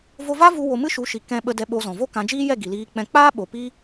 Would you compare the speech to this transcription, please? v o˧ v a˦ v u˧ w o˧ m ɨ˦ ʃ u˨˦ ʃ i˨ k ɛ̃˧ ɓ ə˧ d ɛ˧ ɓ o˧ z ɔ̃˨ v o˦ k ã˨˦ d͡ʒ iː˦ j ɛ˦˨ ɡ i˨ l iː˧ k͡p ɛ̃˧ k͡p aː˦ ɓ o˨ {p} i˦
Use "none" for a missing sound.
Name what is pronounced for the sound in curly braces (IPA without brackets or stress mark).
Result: p